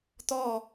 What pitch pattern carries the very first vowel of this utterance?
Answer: falling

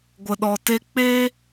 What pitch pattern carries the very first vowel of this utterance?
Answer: low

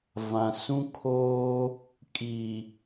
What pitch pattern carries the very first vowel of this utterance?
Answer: low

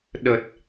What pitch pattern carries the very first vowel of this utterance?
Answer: low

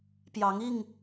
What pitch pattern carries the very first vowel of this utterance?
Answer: rising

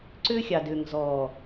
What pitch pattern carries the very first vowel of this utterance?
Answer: high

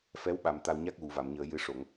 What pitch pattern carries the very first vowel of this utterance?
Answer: rising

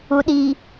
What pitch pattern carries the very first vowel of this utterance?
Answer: low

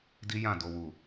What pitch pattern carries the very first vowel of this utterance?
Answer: high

